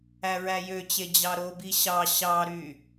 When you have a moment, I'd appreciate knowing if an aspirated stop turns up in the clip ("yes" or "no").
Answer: no